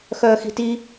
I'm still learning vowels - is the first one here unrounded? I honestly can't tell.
no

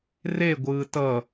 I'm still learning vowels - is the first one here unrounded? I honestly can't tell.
yes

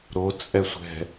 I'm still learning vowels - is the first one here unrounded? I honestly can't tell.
no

